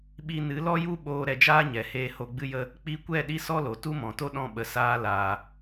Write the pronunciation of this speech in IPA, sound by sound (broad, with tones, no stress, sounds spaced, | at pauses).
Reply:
ɓ i˧ n ɨ˨˦ l ɔ˦ j u˦ ɓ oː˧ ɾ ɛ˧ d͡ʒ aː˦ ɲ ɛ˨ h eː˧ h o˧ ɡ͡b ɨ˦ j ə˦ | k͡p i˧ kʷ ɛ˦˨ ɗ i˦ s ɔ˦ l o˨ t u˦ m ɔ̃˨ t o˦ ɗ ɔ̃˦˨ ɓ ə˧ s aː˦ l aː˧